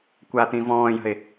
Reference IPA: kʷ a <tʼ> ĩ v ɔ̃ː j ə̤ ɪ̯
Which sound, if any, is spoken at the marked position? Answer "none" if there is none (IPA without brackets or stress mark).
t̪